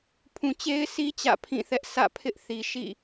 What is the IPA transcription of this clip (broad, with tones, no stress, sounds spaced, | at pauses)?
pʰ ũ˨ t͡ɕ e˦ ɪ̯ sʰ i˦ t͡ɕ ä̰˦˨ pʰ ĩ˦˨ θ ɛ˦ ʔ sʰ ä̰˦˨ pʰ ɪ˦ ʔ θ i˨ ʃ ḭ˦˨